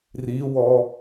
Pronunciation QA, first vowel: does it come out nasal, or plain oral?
oral